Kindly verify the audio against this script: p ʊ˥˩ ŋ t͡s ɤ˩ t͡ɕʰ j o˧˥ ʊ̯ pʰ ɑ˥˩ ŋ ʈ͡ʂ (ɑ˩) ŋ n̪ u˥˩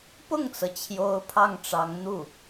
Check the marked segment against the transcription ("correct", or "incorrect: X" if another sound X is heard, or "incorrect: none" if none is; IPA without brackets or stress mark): incorrect: ɑ˧˥